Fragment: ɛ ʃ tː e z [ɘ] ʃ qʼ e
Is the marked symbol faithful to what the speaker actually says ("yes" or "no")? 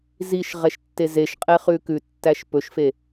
no